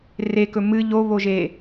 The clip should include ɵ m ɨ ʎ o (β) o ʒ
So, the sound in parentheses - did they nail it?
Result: yes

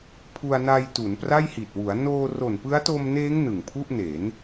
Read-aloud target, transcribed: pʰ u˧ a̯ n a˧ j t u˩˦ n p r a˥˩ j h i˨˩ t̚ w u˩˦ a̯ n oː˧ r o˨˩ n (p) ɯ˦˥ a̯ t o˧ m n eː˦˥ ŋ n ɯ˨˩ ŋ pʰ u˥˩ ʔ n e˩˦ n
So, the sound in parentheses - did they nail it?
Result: yes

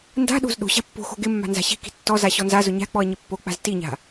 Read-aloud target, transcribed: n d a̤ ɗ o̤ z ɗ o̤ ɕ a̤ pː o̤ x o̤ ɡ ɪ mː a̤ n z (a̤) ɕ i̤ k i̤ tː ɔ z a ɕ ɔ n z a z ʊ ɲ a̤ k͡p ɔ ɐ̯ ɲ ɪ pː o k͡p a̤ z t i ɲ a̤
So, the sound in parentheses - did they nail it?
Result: yes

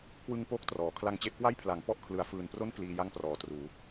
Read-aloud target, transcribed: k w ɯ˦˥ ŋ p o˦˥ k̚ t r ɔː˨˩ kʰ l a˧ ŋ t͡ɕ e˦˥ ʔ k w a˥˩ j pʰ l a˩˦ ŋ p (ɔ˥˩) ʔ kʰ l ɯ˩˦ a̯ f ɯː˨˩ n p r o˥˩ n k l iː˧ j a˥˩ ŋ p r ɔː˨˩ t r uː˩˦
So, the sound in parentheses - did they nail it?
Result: yes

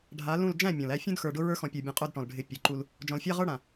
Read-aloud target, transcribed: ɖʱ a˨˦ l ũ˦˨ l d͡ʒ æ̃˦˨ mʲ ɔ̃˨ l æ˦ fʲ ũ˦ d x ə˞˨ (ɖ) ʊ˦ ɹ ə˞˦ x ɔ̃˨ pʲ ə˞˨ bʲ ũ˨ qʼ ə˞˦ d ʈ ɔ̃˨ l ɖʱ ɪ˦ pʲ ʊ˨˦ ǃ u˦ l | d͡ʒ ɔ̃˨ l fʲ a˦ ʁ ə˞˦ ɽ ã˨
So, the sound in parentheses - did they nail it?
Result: yes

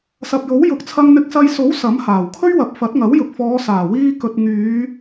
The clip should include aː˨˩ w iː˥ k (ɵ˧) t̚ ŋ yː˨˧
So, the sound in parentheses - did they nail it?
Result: yes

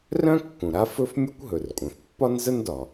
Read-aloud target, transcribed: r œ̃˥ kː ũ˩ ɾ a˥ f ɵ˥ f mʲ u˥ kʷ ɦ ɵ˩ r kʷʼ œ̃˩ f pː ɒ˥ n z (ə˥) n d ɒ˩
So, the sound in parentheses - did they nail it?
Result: yes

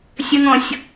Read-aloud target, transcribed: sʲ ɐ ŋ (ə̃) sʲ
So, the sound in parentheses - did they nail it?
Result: no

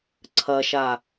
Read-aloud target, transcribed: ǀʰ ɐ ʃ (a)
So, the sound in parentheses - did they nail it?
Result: yes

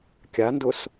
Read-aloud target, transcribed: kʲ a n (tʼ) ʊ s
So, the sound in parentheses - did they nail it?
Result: no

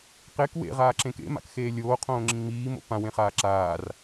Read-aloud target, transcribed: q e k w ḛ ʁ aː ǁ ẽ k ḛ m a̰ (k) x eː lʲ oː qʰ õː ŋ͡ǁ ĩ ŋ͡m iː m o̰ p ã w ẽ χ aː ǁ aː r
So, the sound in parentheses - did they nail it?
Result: yes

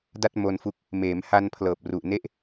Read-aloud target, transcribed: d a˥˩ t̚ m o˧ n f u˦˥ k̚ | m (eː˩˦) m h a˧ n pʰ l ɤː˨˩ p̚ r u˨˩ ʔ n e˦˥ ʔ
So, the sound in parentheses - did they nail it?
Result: yes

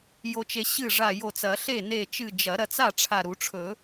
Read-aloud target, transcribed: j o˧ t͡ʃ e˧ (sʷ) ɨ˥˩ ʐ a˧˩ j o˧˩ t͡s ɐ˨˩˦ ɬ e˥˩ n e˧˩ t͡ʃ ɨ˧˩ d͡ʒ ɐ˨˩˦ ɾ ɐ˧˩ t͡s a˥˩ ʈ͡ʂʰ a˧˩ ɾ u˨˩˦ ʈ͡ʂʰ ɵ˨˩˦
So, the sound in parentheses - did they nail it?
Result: no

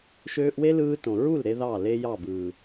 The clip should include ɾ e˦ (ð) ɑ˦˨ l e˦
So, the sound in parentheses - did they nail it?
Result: yes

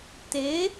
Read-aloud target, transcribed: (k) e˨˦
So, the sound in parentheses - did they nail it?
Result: no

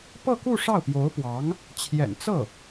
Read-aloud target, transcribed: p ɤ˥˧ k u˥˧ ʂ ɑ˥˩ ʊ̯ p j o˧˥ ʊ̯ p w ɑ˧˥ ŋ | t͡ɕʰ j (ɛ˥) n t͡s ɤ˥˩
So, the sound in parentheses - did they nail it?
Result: no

